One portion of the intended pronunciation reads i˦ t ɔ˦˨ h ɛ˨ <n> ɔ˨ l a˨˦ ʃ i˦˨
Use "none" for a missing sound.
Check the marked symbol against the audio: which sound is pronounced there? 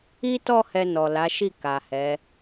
n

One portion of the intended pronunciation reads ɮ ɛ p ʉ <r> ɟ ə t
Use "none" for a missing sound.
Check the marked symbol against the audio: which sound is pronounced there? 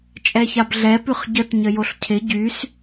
χ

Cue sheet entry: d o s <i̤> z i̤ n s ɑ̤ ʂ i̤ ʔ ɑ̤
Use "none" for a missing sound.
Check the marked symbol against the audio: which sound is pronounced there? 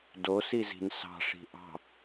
i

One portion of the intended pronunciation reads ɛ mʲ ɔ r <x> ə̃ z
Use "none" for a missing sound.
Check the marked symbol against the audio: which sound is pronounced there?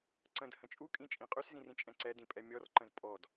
ǃ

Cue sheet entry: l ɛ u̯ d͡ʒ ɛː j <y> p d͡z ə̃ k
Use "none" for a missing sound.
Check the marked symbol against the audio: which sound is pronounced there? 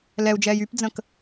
y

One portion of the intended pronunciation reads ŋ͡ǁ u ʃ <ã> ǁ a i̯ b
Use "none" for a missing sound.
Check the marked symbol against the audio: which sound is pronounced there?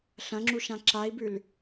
ã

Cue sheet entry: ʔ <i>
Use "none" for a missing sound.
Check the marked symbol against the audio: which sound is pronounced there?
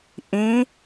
ĩ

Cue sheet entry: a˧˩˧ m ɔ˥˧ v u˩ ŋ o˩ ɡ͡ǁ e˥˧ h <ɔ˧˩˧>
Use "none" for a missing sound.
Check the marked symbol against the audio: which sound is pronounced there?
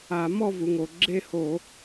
o˧˩˧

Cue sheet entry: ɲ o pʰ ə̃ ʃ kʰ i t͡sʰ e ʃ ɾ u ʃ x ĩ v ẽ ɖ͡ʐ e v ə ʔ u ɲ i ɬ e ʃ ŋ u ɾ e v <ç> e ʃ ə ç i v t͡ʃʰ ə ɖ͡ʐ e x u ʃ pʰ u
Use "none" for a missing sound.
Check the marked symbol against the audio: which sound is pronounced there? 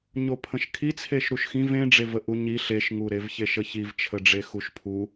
ç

